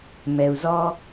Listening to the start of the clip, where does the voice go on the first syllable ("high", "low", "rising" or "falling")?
low